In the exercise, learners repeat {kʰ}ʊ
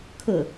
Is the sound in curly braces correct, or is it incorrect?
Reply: correct